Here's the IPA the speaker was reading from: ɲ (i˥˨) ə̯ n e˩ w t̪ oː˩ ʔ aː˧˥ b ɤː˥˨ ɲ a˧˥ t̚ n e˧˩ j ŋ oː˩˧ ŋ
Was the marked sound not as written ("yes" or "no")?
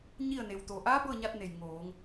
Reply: no